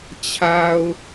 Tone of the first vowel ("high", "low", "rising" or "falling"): low